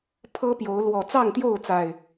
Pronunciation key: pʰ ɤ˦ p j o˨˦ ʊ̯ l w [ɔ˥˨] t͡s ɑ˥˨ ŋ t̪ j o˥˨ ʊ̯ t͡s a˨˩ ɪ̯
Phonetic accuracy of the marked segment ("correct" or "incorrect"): incorrect